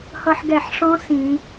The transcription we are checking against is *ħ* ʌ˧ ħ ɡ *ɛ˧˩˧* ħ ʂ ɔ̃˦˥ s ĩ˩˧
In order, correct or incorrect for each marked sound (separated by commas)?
incorrect, correct